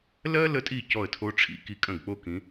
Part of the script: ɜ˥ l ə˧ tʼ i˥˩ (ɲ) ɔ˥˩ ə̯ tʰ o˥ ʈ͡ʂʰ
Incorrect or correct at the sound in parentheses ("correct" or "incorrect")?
incorrect